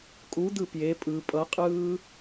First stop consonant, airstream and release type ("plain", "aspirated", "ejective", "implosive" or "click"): ejective